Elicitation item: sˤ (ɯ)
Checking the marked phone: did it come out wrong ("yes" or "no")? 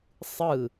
no